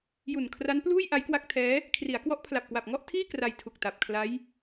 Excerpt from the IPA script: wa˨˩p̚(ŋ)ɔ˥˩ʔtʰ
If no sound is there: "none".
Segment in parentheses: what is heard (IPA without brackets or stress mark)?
ŋ